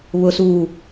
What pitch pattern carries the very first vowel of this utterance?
low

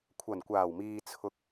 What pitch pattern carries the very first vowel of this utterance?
low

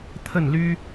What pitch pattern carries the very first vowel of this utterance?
falling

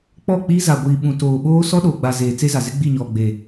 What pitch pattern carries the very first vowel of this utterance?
falling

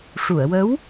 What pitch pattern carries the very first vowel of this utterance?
low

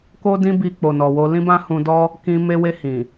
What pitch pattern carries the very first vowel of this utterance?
high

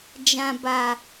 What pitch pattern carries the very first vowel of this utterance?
low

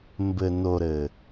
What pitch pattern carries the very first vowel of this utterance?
low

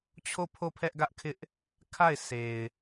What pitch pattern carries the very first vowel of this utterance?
falling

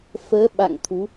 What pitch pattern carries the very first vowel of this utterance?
rising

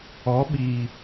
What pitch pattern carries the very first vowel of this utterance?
rising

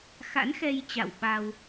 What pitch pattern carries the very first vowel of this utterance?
rising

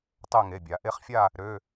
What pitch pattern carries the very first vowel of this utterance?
falling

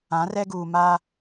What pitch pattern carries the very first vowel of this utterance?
rising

